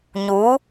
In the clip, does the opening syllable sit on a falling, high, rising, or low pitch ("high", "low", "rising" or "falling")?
rising